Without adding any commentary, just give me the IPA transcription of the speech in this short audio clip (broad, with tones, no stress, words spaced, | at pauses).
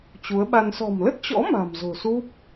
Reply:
t͡ɕu˨˦ə̯ɓa˧n sɔ̤˨˩mlə˦˥t̚t͡ɕɔ̰˧˥ ma̤˨˩mzo̤˨˩su˦˥p̚